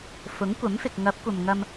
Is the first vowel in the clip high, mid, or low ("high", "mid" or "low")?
high